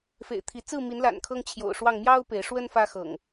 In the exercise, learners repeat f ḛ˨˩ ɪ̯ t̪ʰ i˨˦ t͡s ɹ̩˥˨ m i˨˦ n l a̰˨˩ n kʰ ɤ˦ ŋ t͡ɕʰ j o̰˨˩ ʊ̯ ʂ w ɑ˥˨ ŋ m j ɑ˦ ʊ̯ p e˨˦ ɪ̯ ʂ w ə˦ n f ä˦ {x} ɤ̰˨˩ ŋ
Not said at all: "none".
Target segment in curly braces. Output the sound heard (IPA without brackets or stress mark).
x